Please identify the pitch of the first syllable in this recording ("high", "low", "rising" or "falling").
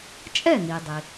falling